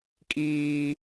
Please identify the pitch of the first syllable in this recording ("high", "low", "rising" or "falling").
high